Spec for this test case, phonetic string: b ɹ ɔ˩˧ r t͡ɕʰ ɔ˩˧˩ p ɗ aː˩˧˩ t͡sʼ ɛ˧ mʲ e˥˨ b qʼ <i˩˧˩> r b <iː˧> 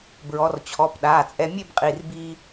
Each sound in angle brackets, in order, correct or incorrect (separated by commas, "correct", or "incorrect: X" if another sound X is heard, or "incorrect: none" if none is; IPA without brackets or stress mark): correct, correct